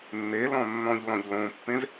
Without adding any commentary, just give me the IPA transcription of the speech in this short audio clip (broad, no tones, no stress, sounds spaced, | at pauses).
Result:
nː e l ɔ̃ nː ɔ̃ ʎ l ɔ̃ ʎ l õ pː ẽ z